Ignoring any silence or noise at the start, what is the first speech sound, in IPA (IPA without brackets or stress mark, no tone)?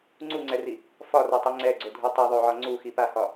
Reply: ŋ͡ǀ